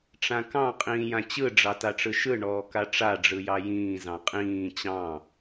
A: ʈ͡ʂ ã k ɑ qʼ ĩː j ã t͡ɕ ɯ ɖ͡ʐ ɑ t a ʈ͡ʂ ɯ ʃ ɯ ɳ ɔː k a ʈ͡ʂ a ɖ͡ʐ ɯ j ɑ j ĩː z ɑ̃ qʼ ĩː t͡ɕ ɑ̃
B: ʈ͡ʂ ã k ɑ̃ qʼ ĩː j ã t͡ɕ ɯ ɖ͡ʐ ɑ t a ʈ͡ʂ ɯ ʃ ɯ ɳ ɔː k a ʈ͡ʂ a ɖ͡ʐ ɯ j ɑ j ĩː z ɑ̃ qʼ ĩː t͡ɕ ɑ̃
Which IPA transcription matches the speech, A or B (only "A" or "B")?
B